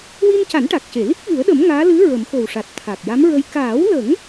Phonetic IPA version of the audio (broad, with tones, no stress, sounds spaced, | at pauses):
w i˧ n c a˨˩˦ n ʈ a˨˩ k̚ c e˨˩˨ l i˦˥ k̚ v ɨ˨˩˦ ə̯ ɗ ə˨˩˦ m ŋ aː˧˥ l ɨ˧˥ ɹ ə˨˩˦ m x o˨˩ w ʂ a˨˩ t̚ t̪ʰ a˨˩ k̚ j a˧˥ m ɹ ə˧ j k aː˨˩˦ w l ə˨˩˦ ŋ